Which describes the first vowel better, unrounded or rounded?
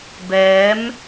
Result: unrounded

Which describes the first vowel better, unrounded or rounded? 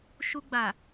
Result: rounded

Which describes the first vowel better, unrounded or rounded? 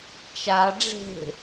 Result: unrounded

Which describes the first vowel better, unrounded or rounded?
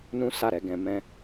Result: rounded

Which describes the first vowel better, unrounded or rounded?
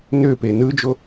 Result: rounded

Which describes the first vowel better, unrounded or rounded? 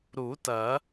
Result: rounded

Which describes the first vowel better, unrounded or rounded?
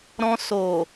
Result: rounded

